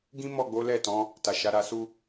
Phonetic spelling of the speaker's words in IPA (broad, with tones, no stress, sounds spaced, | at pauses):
ɡ ĩ˦ m ɔ˦˨ ɡ͡b o˨˦ l ɛ˦˨ t ɔ̃˨˦ | t a˨ ʃ a˨˦ ɾ a˧ s u˦